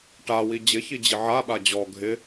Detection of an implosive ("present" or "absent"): present